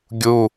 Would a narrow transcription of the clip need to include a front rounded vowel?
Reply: no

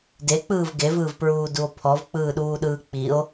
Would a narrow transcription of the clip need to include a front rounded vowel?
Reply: no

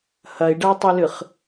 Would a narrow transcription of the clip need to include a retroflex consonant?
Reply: yes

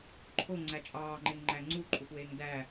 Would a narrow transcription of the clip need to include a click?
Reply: yes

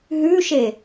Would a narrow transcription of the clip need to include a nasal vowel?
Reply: no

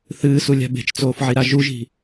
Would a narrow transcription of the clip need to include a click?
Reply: no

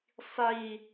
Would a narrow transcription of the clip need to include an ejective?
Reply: no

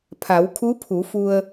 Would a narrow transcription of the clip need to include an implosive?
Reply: no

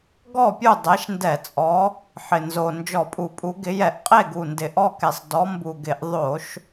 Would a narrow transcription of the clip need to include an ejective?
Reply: yes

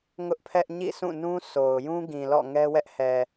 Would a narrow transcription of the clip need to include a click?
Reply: no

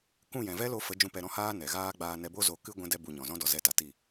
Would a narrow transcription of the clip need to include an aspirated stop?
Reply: no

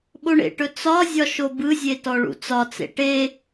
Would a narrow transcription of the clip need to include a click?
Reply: no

